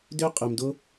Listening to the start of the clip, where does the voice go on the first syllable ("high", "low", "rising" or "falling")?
high